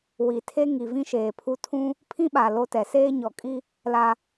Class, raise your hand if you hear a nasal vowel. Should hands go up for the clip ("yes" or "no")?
yes